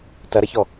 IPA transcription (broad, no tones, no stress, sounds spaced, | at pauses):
t ɐ ɾ ɐ ç ɔ